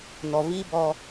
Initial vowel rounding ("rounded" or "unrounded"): rounded